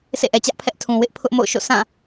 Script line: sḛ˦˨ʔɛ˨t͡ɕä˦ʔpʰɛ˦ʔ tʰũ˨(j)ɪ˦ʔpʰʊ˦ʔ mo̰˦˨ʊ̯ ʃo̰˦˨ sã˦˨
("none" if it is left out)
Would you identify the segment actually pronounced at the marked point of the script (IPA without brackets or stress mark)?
w